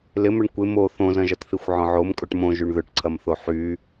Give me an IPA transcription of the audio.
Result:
l ɪ m ʏ ɳ kʷ ɪ m o θ õ z ɐ̃ ʒ ɐ t θ i xʷ ʕ ɔ̃ ʕ o m kʼ o ʈ m õ ʒ y ɳ ð ʏ ʈ ǀʰ ɐ m θ o ħ y

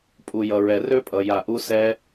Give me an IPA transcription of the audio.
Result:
pʼ u˨ j ʌ˨ ɹ ɛ˨ r ø˦ pʼ ʌ˨ j a˨ ʔ u˦ s ɛ˦

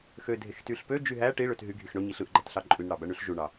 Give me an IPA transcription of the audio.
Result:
x ø dʱ e x t y ɬ p ø d͡ʒ y ɦ æ ʈ i ɭ ø t ɦ y ɡʱ i x ɳ o ɲ i ɬ ɯ ʔ ɡ͡ǃ æ t ɬ ɑ ǃʼ y n ɽ ɑ b æ ɳ y ɬ ʒ u ɳ ɑ

